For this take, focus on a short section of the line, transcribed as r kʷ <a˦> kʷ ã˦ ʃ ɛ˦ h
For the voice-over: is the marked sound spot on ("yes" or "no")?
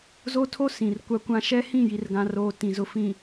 yes